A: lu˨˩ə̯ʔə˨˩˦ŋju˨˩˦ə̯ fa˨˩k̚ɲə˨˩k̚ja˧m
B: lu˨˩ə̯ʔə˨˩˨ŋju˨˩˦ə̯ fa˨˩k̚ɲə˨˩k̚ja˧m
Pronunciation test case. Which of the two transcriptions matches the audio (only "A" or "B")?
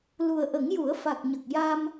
A